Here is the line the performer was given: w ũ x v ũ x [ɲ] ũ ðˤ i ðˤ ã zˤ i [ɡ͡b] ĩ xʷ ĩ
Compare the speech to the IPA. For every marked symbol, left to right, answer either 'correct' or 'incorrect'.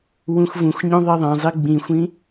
correct, correct

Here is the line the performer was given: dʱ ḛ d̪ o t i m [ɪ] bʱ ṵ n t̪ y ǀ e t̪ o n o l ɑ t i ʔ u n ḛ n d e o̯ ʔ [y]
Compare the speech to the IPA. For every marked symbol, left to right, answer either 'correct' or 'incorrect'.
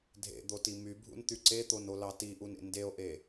incorrect, incorrect

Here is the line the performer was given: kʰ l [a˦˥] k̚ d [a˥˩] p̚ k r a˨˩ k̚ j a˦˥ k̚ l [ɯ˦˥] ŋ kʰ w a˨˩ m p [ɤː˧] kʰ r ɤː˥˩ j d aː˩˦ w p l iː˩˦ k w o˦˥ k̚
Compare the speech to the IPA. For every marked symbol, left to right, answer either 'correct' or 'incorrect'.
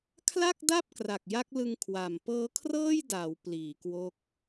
incorrect, correct, incorrect, incorrect

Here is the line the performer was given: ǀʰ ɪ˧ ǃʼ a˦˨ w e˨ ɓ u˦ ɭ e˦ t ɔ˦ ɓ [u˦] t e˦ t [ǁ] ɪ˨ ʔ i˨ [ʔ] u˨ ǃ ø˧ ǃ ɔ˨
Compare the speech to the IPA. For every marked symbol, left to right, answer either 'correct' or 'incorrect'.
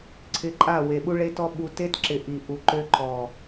incorrect, correct, correct

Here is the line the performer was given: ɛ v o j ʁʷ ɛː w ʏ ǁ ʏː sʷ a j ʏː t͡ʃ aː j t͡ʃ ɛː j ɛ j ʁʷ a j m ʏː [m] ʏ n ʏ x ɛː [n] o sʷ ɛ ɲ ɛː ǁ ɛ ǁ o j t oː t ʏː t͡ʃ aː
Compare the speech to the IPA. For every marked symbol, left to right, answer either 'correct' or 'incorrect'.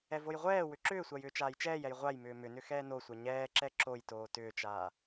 correct, correct

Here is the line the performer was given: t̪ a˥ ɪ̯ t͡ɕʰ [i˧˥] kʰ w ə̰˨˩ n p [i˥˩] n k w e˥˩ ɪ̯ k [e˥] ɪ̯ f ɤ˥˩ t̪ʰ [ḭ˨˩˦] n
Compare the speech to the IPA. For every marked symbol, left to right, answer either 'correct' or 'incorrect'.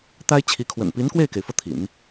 correct, incorrect, incorrect, correct

